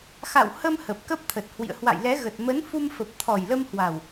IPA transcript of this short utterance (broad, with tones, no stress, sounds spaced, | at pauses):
x a̰˧˨ w h ə˧ m h ə˨˩ p̚ k ə˦˥ p̚ t̪ʰ ə˨˩ t̚ h w ḭ˧˨ ə̯ h w a̰˧˨ j l ɛ˨˦ ɣ ə˨˩ t̚ m ə˨˦ n f u˧ m f ə˨˩ p̚ t̪ʰ ɔ˨˩ j l ə˧ m h w a˨˩ w